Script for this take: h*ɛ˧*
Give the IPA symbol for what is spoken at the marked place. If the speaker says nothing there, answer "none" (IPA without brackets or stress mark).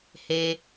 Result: e˧